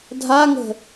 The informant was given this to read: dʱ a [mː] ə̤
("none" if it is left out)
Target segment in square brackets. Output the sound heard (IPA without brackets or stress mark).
ŋ